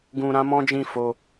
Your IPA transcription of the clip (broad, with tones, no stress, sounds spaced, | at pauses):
ɡ ũ˧ ɾ ã˦ m ɔ̃˦ d͡ʒ ĩ˦˨ f o˧